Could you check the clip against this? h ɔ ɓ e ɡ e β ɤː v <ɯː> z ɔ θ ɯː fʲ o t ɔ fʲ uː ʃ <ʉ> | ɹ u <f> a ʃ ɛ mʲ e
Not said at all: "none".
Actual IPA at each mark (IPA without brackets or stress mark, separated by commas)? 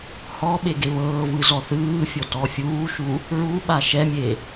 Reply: ɯ, u, ɓ